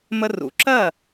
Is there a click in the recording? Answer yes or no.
yes